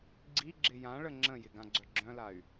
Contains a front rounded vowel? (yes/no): yes